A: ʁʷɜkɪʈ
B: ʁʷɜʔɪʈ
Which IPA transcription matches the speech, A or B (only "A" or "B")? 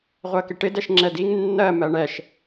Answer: A